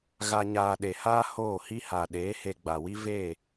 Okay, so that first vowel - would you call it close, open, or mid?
open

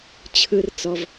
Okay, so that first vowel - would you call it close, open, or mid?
close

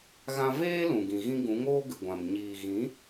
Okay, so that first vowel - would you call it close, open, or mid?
open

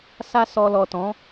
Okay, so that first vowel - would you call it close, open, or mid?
open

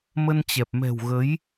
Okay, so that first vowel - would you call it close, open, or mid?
mid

